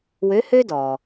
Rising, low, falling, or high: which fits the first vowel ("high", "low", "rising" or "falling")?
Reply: rising